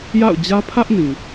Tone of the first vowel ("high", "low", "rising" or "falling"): falling